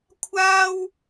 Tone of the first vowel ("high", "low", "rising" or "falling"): high